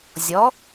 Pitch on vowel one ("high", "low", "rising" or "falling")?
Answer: rising